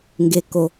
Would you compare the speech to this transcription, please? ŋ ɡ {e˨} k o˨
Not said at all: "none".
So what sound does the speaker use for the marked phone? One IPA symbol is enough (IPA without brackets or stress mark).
e˨